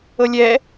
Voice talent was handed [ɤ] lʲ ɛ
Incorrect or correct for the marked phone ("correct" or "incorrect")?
correct